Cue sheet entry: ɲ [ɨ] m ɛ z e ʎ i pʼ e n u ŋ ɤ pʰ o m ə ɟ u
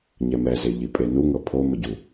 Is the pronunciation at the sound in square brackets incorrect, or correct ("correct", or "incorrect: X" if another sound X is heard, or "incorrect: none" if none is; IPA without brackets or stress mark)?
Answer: incorrect: ɛ